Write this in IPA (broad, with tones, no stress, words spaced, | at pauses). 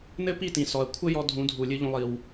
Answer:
nɘ˦pi˦˨tĩ˨ sɔ˨ɐ̯kʷʰɘ˦jɔ˧ dʱũ˨˦dʱu˨lʲɨ˧ʎũ˧ lˠi˧w